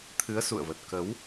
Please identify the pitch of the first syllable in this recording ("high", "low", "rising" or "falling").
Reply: rising